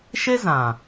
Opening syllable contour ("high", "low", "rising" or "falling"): high